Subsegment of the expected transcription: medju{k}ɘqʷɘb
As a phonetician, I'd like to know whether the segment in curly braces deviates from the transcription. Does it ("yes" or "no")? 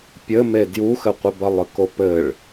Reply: yes